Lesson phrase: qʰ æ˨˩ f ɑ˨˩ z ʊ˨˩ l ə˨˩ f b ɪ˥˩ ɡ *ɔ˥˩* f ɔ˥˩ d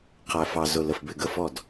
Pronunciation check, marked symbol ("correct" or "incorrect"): incorrect